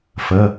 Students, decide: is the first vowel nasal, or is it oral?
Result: oral